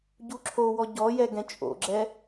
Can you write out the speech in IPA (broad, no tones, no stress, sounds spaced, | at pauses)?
ɟ u ǁʰ o w ɔ ɟ ɔ j ɛ ɡ ɛ̃ t͡ʃʼ o̰ ɡ͡ǁ ɛ